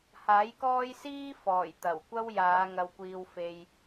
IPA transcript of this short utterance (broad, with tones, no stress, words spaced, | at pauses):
haː˨˥jkɔː˥j siː˥fɔː˨˩j t̪ɐ˨˩wkʷɐ˥wjaː˨˧ ŋɐ˧wkʷiː˧wfe˧j